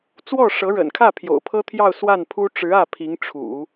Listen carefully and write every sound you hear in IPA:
t͡swɔ˥˩ʂɤ˧˥ɻə̰˨˩nkʰä˥˩ pʰjo̰˨˩ʊ̯pʰɤ˥t̪ʰjɑ˥˧ʊ̯ swa˥˩npʰu˥ ʈ͡ʂɻ̩˧˥ä˥˩ pʰi˧˥ŋʈ͡ʂʰṵ˨˩˦

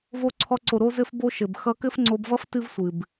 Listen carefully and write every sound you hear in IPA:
vo˧ǀʰɔ˧ǀo˨ ɾo˦zɘ˦fbo˦ ʃɘ˨b xʌ˧kɘ˦fŋ͡ǀo˧bvʌ˦f tɨ˦vsʷɨ˨b

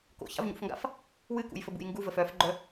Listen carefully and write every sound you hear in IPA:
ko̰ça̰vɲṵfŋɡa̰f | wɨkṵjfəbṵj ŋɡuvəf œfɡ͡ǃœ

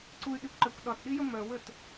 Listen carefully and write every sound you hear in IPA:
ǀuy̯ɗikʷǃɛkʷ ɗɒtɗijə mœwət

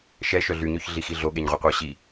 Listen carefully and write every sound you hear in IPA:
ʃɛ ʃœɮyɲøç ɮixiɮoɠeɲ ʁʷeqʷœ ɕi

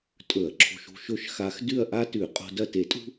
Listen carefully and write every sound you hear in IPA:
tʼɵ˧˩˧ɐ̯ǁʰo̤˧ʃṳ˥˨ʃɵ˥˨ʃ xa˧x dʉ˥˨ɐ̯ʔa˥tʉ˧˩˧ qʼo̤˧dɐ˥˨te˧˩˧tʼṳ˥

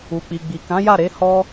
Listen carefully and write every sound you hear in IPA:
u˨k͡pi˨ ɡ͡bi˨kã˨˦ja˦˨ɾe˨˦ hɔ˦

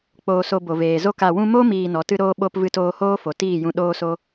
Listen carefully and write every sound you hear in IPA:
k͡poː˨so˨ bo˨veː˨zo˦˨k a˨wũ˧mo˦ miː˧nɔ˨˦tɨ˦ ɾoː˦ɓo˦p vɨ˧toː˧hoː˦ fo˨tiː˦˨jũ˧ ɗoː˦so˦

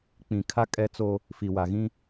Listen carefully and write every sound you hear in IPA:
k͡pĩ˨kʰa˦ kʼɛ˦t͡so˦ | fi˨wa˨ɣĩ˦

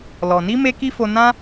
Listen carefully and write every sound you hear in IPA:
lɔ˨ni˧ me˦ki˦fo˧ nã˦

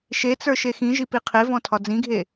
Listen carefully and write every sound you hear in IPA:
ʃet͡sə˞ ʃexĩʒi piqʰevɔ̃ tʰɒd͡zĩɡʱe

